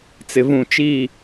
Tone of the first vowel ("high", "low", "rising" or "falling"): low